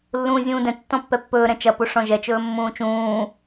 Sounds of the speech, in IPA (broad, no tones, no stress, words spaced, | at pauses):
lːũːzʲũːdɛ̃ tːɔ̃pːɛpːɵː ɾɛ̃t͡ʃɐ puʂɔ̃ʒɛ t͡ʃɵːmːũːt͡ʃũː